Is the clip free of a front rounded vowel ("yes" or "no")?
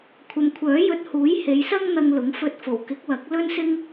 no